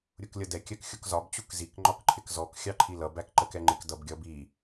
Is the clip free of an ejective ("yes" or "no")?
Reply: yes